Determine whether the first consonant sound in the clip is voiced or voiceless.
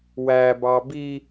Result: voiced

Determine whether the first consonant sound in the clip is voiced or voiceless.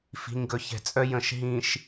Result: voiceless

